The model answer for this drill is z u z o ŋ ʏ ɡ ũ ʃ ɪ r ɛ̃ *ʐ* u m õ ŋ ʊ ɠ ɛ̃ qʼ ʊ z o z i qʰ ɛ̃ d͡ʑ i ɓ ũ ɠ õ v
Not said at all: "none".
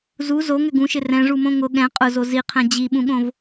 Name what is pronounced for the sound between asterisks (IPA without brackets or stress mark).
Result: ʐ